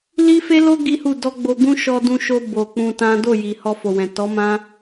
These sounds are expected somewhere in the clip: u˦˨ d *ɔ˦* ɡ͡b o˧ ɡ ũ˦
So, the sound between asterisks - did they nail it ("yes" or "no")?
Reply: no